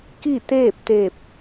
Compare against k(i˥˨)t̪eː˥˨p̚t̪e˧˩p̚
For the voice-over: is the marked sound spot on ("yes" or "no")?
yes